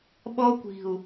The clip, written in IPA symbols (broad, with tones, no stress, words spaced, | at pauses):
ɓɔ˥kʷi̤˧˩u̯